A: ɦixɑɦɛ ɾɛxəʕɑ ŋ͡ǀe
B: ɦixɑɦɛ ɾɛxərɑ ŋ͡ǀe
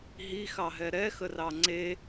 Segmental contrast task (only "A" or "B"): B